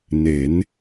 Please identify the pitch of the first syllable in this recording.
rising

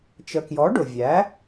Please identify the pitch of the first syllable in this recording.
low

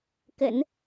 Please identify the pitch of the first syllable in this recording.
low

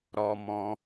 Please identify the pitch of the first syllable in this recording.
low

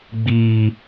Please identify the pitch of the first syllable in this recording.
high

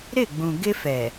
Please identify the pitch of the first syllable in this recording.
falling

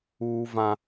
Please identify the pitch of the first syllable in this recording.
high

